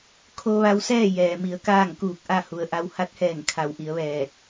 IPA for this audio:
kʰ o˧ ʋ a˧ w s ɛː˥˨ j ɛː˩ m i˩˧ ə̯ k aː˥˨ ŋ k uː˧˩ k̚ ʔ a˥˨ h u˩ ə̯ ʔ a˧ w h a˧ t̚ h ɛː˧˩ ŋ kʰ a˩˧ w ʔ i˩˧ ə̯ ʋ ɛː˧˩ t̚

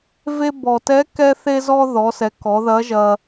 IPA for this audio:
v e˧ b ɔ˩ t ɛ˧˥ k ɛ˥ θ e˥ z ɔ˥ ð ɔ˩˧ s ɛ˩˧ k ɔ˩˧ ð ɐ˧˥ ʒ ɐ˧

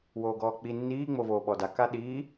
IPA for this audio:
w oː ɡ ɔː k͡p i nː iː ŋ͡m o v oː ɓ ɔ d a k a ɗ iː

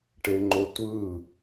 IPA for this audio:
ʈ e ŋ͡ǃ o tʷ ɯ

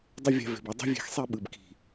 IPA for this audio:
dˤ ə˦ vʲ a̤˧ v e̤˨ b i˧ dˤ i̤˦ vʲ e̤˧ x sˤ i˧ ɓ ɯ˨ b k i̤˨

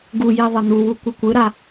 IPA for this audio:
ɡ u j i ðˤ ɤ n̪ u w u kʷ ɯ kʷ ɯ ɾ a

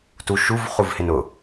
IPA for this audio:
t u ʃ u v χ u v h ɪ n ʊ

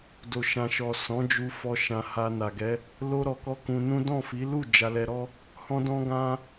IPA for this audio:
d o˨ ʃ ã˨ ʃ ɔ˨ s ɔ̃˨˦ d͡ʒ u˧ f ɔ˧ ʃ ã˧ h a˧ n a˨ ɡ ɛ˨˦ | l o˦ ɾ ɔ˧ k ɔ˦ k ũ˧ n ũ˦ d ɔ̃˦˨ f i˨˦ l u˦˨ d͡ʒ a˧ l ɛ˧ ɾ ɔ˦ | h ɔ̃˦ d ɔ̃˦ ɡ ã˦

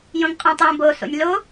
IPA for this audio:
j õ ŋ qʼ õ tˤ j õ b o s o̰ nʲ l o

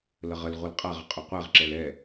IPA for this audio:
l ə ʁ ə l ʁʷ ə l qʼ a ʁ ə qʼ ɵ qʷ ɛ ʁ ǁ ɛ l ɛ

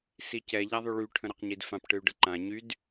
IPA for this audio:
s i c ɛ ʎ a ðˤ y ɭ y ʈʰ ə̃ ɾ ɛ q ɲ i d f ã p ʈ ɨ y̯ ɖ ə ǃ ã ɲ y d

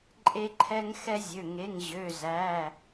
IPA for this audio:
ǃʼ e˦ ǃʰ ɛ˦ ŋ x ɛ˦ zʲ ø˩˧˩ ŋ e˩˧˩ ŋ ʑ ø˩˧˩ z æ˩˧˩

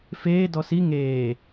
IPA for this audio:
f eː d ɔ s i ŋ eː

